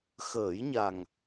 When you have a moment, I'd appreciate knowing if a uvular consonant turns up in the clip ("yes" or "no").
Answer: no